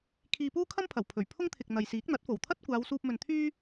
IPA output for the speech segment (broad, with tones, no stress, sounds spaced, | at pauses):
kʰ iː˧ p uː˥ kʰ ɐ˥ m pʰ ɐ˨˩ w pʰ ɵ˨˩ ɥ pʰ ʊ˥ ŋ t̪ʰ ɪ˨ k̚ n̪ ɐ˨ j s iː˨˥ k̚ n̪ ɐ˨˥ t̚ f o˨˩ w t̪ʰ ɐ˥ t̚ kʷ aː˨˧ w s uː˧ p̚ m ɵ˨ n t̪ʰ yː˥